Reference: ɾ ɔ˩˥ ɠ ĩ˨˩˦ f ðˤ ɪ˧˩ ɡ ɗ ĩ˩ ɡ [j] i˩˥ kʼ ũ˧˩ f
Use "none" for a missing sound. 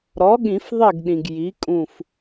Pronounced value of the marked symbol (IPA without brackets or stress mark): j